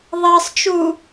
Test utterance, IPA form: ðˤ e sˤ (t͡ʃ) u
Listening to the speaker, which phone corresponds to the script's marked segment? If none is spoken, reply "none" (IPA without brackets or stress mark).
t͡ʃ